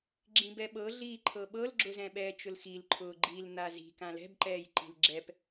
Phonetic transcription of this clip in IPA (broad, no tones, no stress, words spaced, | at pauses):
ɡ͡ǁĩbɛɓɤ ɮiːǃʰɤɓɤl ɡ͡ǁʊzɛ̃ɓɛ t͡ʃʊlxil ǃʰʊːɡ͡ǃil n̪azi̤ kãlɛ̤bǃɛːjǃi̤l ɡ͡ǁɛp